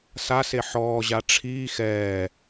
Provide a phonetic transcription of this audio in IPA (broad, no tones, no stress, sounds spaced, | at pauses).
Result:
s a s e ħ ɔː ʑ a ʈ͡ʂʰ iː x ɛː